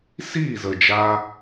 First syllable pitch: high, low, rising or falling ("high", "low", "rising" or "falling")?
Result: falling